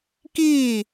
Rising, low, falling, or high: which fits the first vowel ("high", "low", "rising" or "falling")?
falling